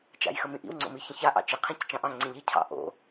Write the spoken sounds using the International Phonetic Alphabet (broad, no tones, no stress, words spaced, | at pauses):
t͡ʃa̰jxəmĩʔḭw ŋ͡ǀo̰miçə̃ça ʔɑ̰t͡ʃi qʰĩct͡ʃɑ̃ʔɑ̃ ŋ͡ǀĩʎi cʰɑ̰ ʔo̰